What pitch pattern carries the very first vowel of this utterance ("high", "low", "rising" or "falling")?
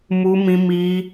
high